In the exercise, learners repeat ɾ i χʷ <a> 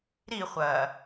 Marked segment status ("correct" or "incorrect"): incorrect